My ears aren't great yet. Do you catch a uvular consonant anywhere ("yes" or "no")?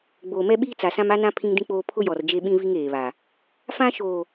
no